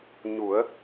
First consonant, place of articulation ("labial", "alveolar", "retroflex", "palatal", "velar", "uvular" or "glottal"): palatal